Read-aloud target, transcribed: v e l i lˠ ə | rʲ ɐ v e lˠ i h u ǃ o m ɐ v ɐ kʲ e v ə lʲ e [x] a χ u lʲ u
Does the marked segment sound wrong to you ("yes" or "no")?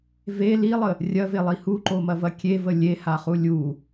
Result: yes